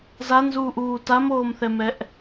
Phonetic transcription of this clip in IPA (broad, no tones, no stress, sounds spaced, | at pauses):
z a n z uː ʔ uː t a m oː m θ ɛ m ɛ ʔ